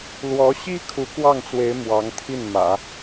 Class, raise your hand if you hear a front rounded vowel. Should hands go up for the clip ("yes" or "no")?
no